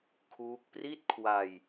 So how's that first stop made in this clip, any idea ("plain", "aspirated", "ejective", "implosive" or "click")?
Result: aspirated